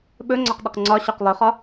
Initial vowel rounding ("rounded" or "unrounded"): rounded